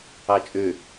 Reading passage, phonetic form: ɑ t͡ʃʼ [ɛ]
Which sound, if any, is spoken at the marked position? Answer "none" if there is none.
ø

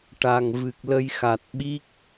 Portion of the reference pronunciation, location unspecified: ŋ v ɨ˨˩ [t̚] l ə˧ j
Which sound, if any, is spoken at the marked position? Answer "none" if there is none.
k̚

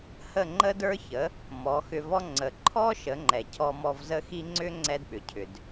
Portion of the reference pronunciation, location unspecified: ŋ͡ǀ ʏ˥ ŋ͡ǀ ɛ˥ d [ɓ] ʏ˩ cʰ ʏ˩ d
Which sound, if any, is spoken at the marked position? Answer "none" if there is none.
ɓ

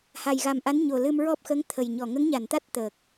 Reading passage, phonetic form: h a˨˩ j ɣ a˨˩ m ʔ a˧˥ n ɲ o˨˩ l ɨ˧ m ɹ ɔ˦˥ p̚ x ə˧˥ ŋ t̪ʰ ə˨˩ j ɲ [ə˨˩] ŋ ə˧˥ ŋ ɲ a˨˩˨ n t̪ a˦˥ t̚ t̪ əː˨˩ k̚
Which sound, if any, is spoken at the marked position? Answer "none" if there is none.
ɔ˨˩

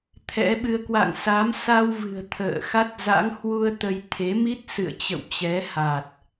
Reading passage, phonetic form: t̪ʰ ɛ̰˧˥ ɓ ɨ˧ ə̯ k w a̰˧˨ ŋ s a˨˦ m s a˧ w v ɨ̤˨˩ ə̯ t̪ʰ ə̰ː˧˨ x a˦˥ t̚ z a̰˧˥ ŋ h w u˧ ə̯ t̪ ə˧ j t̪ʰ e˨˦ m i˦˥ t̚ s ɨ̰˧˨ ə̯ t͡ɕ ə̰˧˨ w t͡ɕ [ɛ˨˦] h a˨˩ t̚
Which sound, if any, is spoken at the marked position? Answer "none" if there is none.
ɛ˨˦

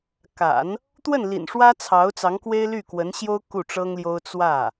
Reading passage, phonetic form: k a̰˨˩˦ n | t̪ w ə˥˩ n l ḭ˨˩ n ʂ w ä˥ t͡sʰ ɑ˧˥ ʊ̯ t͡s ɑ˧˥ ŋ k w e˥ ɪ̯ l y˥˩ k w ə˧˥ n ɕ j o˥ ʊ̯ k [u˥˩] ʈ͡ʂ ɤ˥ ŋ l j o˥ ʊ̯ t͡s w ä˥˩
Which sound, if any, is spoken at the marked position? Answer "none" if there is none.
u˥˩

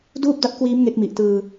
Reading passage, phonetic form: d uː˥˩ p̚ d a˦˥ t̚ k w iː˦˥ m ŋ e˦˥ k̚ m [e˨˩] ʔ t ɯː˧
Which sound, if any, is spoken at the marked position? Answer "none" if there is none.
i˨˩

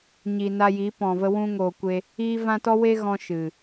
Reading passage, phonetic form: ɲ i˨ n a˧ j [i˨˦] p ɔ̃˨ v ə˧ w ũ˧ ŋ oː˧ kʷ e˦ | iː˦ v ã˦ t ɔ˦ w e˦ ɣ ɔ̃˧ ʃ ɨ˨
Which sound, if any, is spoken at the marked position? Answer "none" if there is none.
i˨˦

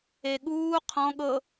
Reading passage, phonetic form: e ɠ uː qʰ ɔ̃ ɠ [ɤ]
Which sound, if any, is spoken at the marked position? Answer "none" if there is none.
ɤ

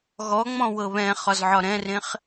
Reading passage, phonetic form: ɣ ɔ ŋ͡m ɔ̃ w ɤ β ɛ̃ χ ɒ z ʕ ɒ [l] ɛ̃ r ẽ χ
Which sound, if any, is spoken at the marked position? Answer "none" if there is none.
ɾ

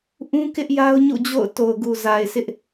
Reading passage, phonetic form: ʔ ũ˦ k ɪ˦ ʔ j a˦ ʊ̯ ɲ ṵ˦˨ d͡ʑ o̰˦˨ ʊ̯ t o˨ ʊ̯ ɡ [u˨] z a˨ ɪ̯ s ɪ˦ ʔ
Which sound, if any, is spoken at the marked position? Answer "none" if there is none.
u˨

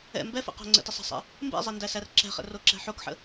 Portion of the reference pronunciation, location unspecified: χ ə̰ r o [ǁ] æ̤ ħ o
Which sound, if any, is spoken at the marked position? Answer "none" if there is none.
ǁ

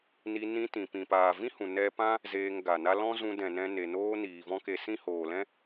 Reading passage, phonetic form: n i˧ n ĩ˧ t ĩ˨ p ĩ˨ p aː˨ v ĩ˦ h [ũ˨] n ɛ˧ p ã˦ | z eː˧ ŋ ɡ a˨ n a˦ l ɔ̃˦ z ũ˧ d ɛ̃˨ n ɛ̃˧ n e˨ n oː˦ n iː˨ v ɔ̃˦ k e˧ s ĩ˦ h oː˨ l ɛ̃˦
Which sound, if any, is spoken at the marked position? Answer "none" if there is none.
ũ˨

